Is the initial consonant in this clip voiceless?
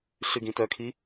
yes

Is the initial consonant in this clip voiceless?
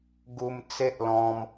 no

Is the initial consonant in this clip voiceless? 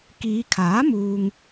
yes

